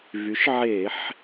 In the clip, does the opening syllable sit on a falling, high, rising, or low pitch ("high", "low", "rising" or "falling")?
rising